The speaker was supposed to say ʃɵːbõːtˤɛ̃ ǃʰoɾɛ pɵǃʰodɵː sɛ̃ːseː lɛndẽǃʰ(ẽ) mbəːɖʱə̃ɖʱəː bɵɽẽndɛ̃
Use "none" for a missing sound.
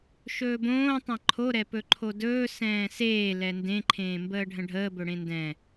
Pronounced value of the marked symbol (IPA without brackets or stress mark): ẽː